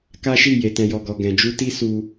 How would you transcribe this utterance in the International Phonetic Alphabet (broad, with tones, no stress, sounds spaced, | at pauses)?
k a˦ ʃ i˦˨ j e˨ t ɛ̃˨ j ɔ˨ ɡ ɔ˨ ɡ ɛ̃˨ d͡ʒ u˧ t i˦ s u˧